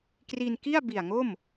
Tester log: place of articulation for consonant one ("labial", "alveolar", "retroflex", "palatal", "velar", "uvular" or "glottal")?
velar